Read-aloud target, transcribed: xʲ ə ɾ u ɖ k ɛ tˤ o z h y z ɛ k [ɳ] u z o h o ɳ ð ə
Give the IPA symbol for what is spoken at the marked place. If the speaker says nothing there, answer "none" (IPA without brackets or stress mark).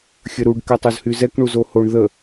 ɳ